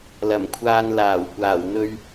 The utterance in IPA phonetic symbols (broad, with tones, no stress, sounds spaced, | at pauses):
l ɐ˨˩ m kʷʰ aː˧ n l aː˨˩ w kʷ aː˨˩ w n̪ ɵ˧ ɥ